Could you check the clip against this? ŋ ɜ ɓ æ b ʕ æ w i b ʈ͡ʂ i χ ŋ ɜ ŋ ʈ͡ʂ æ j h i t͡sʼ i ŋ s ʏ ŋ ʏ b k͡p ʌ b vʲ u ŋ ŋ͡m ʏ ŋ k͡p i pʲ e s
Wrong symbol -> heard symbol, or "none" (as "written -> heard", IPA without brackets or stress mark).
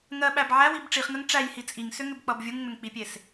none